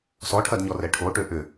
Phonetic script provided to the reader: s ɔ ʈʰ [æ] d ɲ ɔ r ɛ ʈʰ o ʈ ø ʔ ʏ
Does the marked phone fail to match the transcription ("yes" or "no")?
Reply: yes